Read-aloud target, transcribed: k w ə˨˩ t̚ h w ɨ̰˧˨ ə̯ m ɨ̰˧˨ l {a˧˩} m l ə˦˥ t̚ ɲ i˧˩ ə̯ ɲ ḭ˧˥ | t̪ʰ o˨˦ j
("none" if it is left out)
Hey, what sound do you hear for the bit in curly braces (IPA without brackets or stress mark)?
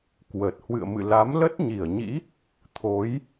a˨˦